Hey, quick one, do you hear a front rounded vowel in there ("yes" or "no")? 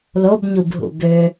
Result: yes